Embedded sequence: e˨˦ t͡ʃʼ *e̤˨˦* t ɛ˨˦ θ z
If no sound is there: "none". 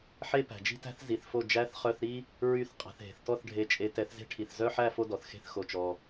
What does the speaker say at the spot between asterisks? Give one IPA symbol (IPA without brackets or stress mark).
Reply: e˨˦